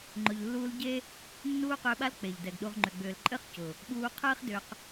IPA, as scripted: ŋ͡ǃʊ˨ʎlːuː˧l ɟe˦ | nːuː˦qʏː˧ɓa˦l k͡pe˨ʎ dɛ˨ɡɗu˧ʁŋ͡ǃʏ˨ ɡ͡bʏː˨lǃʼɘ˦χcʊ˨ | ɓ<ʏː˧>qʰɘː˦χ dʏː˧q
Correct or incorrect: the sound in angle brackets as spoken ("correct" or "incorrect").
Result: incorrect